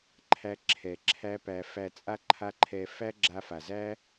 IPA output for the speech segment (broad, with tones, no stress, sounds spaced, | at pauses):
ǃʰ æ˧ ǁʰ ɛ˨ ǁʰ æ˧ p æ˨ f æ˨ t͡sʼ a˧ ǃʰ a˧ ǃʰ ɛ˨ f æ˦ ɡ͡ǁ a˧ f a˨ z æ˦